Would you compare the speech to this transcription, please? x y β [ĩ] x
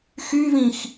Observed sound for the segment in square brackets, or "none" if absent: ĩ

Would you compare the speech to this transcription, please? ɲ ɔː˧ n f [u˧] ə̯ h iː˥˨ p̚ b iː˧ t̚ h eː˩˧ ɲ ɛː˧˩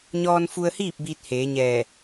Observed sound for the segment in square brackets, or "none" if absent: u˧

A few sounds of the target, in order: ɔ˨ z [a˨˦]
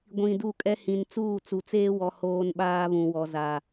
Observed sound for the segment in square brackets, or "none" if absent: a˨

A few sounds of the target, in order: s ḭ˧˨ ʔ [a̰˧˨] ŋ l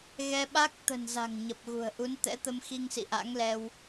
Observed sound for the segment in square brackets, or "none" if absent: a̰˧˥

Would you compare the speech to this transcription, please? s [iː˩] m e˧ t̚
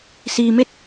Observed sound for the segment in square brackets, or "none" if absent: iː˩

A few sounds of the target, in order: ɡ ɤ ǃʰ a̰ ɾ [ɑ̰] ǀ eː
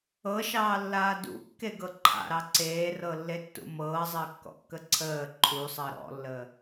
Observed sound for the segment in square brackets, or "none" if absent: ɑ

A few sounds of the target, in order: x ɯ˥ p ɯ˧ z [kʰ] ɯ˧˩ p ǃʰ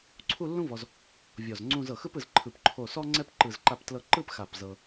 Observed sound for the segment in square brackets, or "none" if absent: ǃʰ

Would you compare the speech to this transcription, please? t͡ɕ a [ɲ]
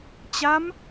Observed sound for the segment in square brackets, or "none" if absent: m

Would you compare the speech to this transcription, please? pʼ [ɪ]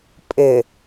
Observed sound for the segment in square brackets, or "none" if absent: ɪ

